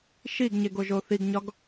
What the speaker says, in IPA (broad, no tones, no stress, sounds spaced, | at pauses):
ʃ i ɡ ɲ e ɡ o ʒ o θ i ɡ ɲ ɒ ɡ